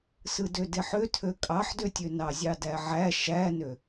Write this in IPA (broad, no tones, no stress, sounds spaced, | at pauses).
s ɯ d ø d e ħ ø tʰ ø kʼ ɑ ħ d ø tʲ ø n ɑ zʲ ɑ d æ ʕ æ ʃ æ n ø